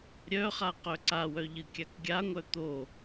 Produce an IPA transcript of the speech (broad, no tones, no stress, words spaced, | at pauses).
ɾʲœχa qœǀawœ ʎɨkʲakɡʲaŋʷœ t̪o